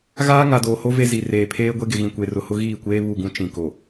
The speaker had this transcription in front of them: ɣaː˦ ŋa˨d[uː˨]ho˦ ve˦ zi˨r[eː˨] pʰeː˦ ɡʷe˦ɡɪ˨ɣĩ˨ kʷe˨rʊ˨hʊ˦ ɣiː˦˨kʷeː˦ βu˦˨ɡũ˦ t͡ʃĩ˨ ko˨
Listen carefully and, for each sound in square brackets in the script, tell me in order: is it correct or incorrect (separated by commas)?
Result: incorrect, correct